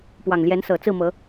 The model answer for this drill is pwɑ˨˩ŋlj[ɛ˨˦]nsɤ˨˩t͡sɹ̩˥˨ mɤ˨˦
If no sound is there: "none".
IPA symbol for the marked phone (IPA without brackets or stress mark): ɛ˨˦